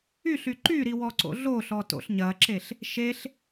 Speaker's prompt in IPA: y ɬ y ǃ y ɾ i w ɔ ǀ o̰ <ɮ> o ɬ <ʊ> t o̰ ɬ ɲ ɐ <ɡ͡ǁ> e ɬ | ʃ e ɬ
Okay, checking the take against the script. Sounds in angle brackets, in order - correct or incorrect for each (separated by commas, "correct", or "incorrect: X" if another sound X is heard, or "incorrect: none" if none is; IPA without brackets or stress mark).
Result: correct, incorrect: ɔ, incorrect: ǁ